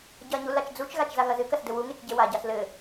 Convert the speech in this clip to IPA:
ɟ ɐ ɲ u l a t͡ʃ d͡z u t͡ʃ ɣ a t͡ʃ z a ɣ ɐ z ɨ k ɐ s d ɘ w u ŋ e t͡ʃ ɟ e w a ɟ a s l ɘ

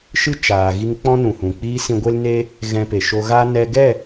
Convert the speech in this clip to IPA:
ʃ ɨ˦ t͡ʃ aː˨ ɣ i˧ ŋ k͡p ɔ̃˦ n ũ˨ h ũ˨ k͡p iː˧ s ĩ˧ ɡʷ e˦ l n e˦ | ɣ ɛ̃˧ p e˨ ʃ o˧ ɣ a˦ n ɛ˧ ɡ ɛ˦˨

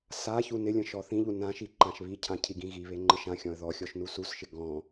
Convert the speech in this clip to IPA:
s a ç u n ɪ lʲ ə̃ ʃ ɔ θ ĩ ʎ u n ã ʃ i ǃ ã ʃ β i cʰ ã cʰ i ɡ ĩ ɣ i β e ŋ͡ǃ ə ʃ ã xʲ ɔ̃ ə̯ ð ɔ xʲ ɔ ʃ n u s u s ʃ ɪ ɡ ɔ̃

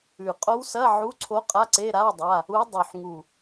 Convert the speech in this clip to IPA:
ʉ˨˩ qʼ o˧˥ w s ɐ˧˥˧ ʕ u˧˥˧ ǀʰ o˧˥ qʼ a˧˥˧ ǀ e˧˥˧ ɾ a˧˥˧ w dˤ a˧˥˧ | u˧˥ dˤ ʉ˨˩ ħ ŋ u˨˩

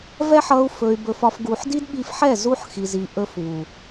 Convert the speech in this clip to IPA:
v ɛ˦ ħ ʌ˧ u̯ f ɵ˧ y̯ b ɵ˧ f ɒ˦ f ɡ u˧ ħ d i˦ d ɓ i˧ f ħ ɛ˦˨ z u˦ ħ x i˨ z i˨ ʔ ɵ˧ f β u˨

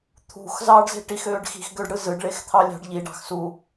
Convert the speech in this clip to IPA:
t̪ʰ ṳ x z ɑː ɖ z e̤ ʈ i x øː ɖ x i̤ x ɡ ø ɖ ɽ ɯ z ɯ ɖ ɭ e x t̪ʰ ɑ lʲ ɑ̤ ɖ ʎ i ɖ ɑ̤ x s u

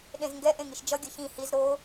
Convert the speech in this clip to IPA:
ɗ ẽ z ŋ ɡ ɛ ʔ ẽ ŋ i ʃ d͡ʒ ʌ ɡʲ ʌ ç ĩ h i z ɾ o

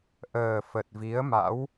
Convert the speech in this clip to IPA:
ʔ əː˨˩ f ə˨˩ t̚ v i˨˦ ə̯ m a̰˧˥ w

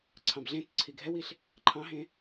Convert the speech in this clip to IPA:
ǀʰ ɑ̃ b ɮ ẽ t ǀʰ i ɡʱ ɛ w i ɬ | ǃʰ ɑ̃ ɦ ẽ

